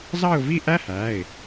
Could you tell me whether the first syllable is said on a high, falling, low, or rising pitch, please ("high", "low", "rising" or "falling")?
falling